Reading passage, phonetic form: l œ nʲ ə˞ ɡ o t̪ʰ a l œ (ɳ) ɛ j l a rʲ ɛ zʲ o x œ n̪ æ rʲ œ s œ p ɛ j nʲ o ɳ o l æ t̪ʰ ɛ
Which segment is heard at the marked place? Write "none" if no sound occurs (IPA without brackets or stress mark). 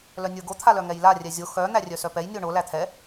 ŋ